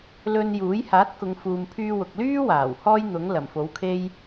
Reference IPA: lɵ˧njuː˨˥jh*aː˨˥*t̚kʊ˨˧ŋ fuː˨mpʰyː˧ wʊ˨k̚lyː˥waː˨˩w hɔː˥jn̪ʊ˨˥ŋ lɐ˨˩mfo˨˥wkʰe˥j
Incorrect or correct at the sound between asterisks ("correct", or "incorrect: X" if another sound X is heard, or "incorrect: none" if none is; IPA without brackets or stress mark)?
correct